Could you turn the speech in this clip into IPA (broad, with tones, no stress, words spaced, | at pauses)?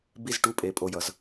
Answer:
bi˥˧zʈu˧˥˧ pʼe˩˥pʼo˩˧˩jʌ˨˩˦z